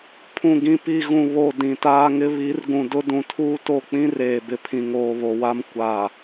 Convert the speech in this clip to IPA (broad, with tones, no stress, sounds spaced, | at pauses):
pʰ ũ˨ ɡ ĩ˨ p i˨ ɣ ũ˨ β o˨ d ĩ˨ t aː˦ ŋ ɪ˦ β i˨˦ r ɡ ũ˨ d ʊ˦ d ũ˨ tʰ uː˦ t o˦˨ k͡p ĩ˦ r eː˨ b ɪ˨ pʰ ĩ˨ ŋ oː˨ β o˨ w a˦ m kʷ a˨